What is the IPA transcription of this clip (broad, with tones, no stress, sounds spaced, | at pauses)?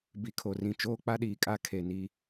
b i˨ kʰ o˨ r ĩ˨ t͡ʃ oː˦ k͡p a˦ ɗ iː˨ kʼ a˦ kʰ e˨ n i˦